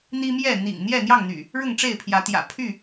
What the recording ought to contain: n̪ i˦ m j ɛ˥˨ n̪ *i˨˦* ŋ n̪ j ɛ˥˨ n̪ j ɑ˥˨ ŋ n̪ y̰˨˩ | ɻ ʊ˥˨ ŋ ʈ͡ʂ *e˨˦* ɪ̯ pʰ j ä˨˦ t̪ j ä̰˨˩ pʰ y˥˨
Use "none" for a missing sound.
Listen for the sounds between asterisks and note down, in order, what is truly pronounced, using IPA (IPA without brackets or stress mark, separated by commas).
ḭ˨˩, e˥˨